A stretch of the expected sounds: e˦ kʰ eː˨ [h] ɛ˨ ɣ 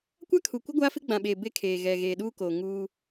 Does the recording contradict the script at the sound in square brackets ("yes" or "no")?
yes